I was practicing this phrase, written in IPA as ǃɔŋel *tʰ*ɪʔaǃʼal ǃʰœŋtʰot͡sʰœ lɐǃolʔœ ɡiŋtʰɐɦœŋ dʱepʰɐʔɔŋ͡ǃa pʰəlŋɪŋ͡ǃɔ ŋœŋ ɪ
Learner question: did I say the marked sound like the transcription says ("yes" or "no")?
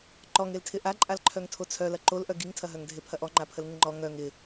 yes